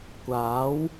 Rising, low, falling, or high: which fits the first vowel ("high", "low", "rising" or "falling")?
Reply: rising